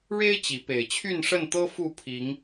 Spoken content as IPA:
ɻ e˦ ɪ̯ t͡ɕ i˨˦ p e˨˩ ɪ̯ t͡ɕʰ y˥˨ n ʂ ə˥˨ n t̪ ɤ˦ f u˥˨ pʰ i˨˦ ŋ

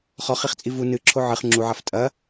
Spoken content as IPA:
χ ɔ χ i χ t͡sʼ i v u n ɨ ǁʰ o ʕ ɨ χ ŋ͡ǁ u ʕ a f tʼ ɐ

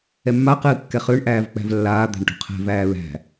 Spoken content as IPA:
ɛ mː a q ɨː kː ɛ χ ø ɳ ʔ æː v k͡p æ̤ v lː aː d̪ æ̤ ɳ ʈ ṳ qʰ ɛ̤ v æː ɹ æ̤

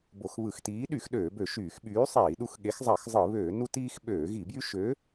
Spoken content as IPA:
b o˧˩˧ x β ɯ˧˩˧ x t iː˨˥ ɗ y˧˩˧ x ɗ øː˧˩˧ b ø˧˩˧ ʃ yː˧˩˧ x ɓ yː˨˥ sˤ iː˧˩˧ ɗ u˦ x ɠ e˨˥ x zˤ ɑ˧˩˧ x zˤ ɯ˧˩˧ β øː˧˩˧ n u˦ t iː˦ x ɓ øː˧˩˧ ɣ i˧˩˧ b j y˦ ʃ ø˨˥

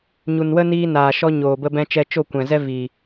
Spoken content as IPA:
ɲ u˨ n w ə˦ n iː˧ n aː˨ ʃ ɔ˧ ɲ oː˨ b ə˧ b ɛ̃˧ t͡ʃ ɛ˧ t͡ʃ o˦˨ kʷ ɛ̃˨ z ɛ˦ v i˨

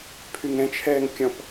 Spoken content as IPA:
pʰ y ŋ ɛ̃ t͡ʃʰ ɛː ŋ kʲ ɔ̃ p

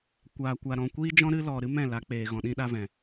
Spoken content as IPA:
kʷ aː˧ kʷ a˧ ɾ ɔ̃˧ kʷ iː˦ d͡ʒ ɔ̃˦ ɾ ɨ˧ l ɔ˨ ɾ ɨ˦ m ɛ̃˦˨ l a˨˦ k͡p eː˨ ɣ ɔ̃˨ ɗ ĩ˧ ɗ a˧ v ɛ̃˨

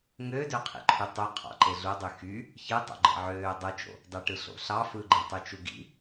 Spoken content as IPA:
ŋ ø d ø qʰ ḭ ǃʰ y tˤ u qʰ ɑ̰ ǃ e ɮ u dˤ y x y | ç ɯ tˤ o̰ ɡ͡ǃ ḛ ʕ øː dˤ ɯ t͡ʃ o̰ | d ɑ ʈ ɯ ɬ o̰ ɬ ɑ f ɯ ɡ͡ǃ e tˤ y t͡ʃ u ɡ ḭ

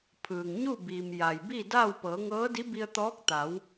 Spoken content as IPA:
pʰ ɯː˩ ŋ ɲ u˥˨ b iː˩ m j a˩ j b i˥˨ d a˥˨ w p ɤː˩˧ ŋ ɤː˧˥ d i˧˥ b i˧ ə̯ t̪ ɔː˧˥ k̚ t̪ a˩˧ w

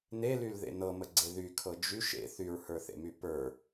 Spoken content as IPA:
n e l y l ð ḛ n ɤ m ə ɡ͡ǀ e ð y kʰ ɤ d͡ʒ y ʃ ḛ θ y ɹ h ə˞ θ ḛ m y p ə˞

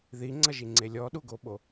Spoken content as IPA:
ð i ŋ͡ǀ ʌ ʒ i ŋ͡ǀ e lʲ ɔ ɗ u ɡ o ɓ o

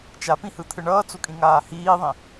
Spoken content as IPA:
t͡ʃ a p ĩ h ɯ t̪ʰ ɯ ɳ ʌː t͡s u kʼ ĩ ŋ aː h iː ðˤ ĩ

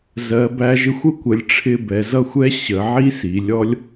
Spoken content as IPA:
z ɜ˩˧ b æ˧ ʒ ɪ˧ xʷ ə˥˧ kʷ ə˩˧ lʲ ʈ͡ʂʰ ɪ˧ b ɛ˩˧ z ʌ˥˧ xʷ ɛ˥ ɕ ə˩˧ ʕ i˥ s i˩˧ lʲ ɔ˥ lʲ

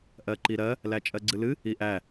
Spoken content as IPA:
ʔ ɜ ǃ i ɾ ɜ | l æ t͡ʃʼ ɜ ɡ͡ǀ ɨ l ɨ | i ʔ æ

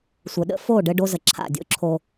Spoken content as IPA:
sʷ ə˨ ɗ ə̰˦ f o˦˨ ɖ ɘ˦ ɖ o˦ z ə˨ ǁʰ a̰˦˨ dʲ o̰˦ ǁʰ o˨

